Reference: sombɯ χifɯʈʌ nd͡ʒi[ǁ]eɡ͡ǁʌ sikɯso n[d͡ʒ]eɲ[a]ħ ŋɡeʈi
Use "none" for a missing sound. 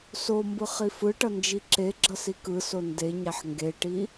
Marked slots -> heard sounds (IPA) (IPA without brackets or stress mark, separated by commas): ǁ, d, a